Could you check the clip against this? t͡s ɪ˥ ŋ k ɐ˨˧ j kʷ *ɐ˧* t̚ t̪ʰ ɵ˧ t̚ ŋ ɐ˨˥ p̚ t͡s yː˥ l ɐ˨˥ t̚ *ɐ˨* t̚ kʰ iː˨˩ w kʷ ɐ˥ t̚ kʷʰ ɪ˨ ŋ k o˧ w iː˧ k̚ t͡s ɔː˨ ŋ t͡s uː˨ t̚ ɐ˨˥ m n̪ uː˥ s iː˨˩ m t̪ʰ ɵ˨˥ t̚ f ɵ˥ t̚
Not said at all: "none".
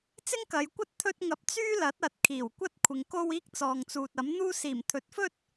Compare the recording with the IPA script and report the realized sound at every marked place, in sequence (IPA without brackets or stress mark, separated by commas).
ɐ˥, ɐ˨